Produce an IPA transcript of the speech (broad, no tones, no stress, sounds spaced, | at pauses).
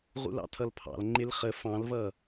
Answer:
ʁ ṵ l ɑ̰ tʰ ʌ l pʰ ɑ̰ l ŋ͡ǃ ɪ l χ ə f ɑ̃ l v ʌ